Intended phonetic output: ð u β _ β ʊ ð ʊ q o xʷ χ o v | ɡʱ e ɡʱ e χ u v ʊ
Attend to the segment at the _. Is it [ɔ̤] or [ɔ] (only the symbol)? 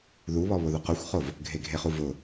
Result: ɔ